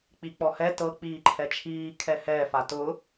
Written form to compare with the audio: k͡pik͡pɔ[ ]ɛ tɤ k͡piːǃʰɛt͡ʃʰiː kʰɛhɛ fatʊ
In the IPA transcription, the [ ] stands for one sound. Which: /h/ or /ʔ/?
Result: h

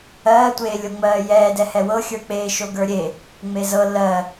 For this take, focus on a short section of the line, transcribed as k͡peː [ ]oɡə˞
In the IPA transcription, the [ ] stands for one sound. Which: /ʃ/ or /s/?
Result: ʃ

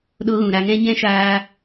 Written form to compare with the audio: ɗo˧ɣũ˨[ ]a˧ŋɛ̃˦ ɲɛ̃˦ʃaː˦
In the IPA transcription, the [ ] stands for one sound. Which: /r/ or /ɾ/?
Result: ɾ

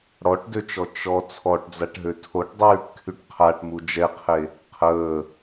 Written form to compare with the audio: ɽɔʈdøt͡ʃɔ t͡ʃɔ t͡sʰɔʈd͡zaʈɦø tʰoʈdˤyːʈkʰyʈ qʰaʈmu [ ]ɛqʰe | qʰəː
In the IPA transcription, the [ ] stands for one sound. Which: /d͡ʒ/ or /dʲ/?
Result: d͡ʒ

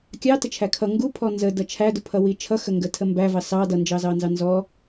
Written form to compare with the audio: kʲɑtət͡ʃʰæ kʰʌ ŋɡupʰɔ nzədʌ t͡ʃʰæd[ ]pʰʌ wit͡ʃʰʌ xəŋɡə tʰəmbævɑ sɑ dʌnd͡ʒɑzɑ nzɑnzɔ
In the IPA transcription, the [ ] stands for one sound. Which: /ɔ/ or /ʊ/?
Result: ʊ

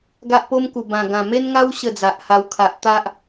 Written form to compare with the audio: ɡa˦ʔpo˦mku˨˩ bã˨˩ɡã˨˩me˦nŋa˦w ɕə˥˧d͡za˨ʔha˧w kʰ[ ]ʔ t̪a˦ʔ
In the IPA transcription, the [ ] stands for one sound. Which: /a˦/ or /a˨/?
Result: a˨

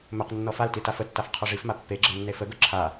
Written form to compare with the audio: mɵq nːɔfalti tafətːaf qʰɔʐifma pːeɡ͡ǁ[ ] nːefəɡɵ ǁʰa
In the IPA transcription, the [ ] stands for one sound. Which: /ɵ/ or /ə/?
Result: ə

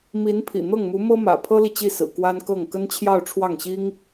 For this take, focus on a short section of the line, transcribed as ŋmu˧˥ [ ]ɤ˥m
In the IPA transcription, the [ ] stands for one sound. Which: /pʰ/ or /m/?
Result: m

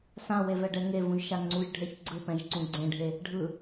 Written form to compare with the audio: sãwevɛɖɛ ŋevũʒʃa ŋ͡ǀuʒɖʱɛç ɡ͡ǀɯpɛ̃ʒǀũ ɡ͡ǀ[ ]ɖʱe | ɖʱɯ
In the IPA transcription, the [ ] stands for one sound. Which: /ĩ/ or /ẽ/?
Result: ẽ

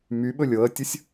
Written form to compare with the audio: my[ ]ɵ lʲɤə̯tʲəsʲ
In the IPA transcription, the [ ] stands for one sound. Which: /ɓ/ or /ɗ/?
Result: ɓ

